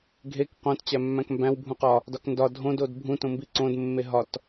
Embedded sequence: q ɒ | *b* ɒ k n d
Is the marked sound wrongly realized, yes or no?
yes